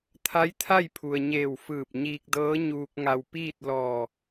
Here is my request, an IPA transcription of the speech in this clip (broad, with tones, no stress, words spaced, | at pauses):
t̪ʰa˧˥jt̪ʰa˥˨jpʰu˩ə̯ɲeː˧˩w fɯː˧˩p̚ɲiː˧k̚dɤː˧˥ ɲuː˧k̚ŋa˧w piː˥˨t̚lɔː˧˩